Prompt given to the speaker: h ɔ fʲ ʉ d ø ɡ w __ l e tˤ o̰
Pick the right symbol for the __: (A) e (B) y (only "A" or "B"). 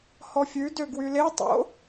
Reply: B